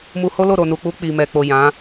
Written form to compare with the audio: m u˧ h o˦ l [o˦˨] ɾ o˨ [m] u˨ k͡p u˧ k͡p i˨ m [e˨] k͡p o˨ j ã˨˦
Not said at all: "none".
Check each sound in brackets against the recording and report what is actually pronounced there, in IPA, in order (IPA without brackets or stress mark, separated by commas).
o˦˨, n, ɛ˨